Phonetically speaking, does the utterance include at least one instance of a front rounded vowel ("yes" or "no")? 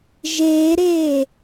no